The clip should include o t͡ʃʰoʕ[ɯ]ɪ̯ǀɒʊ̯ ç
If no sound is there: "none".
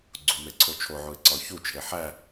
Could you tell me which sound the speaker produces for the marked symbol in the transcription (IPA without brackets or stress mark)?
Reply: u